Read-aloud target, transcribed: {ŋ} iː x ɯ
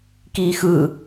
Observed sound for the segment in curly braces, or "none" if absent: k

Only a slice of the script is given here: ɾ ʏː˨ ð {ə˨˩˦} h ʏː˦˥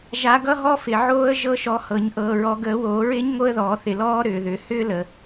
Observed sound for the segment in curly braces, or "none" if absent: ʏ˨˩˦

